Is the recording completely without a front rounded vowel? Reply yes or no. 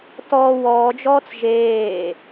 yes